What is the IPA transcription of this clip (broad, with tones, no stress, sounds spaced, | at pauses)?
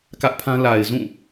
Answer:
k ä˦ ʔ pʰ ã˦ l a˨ ɪ̯ z ũ˦˨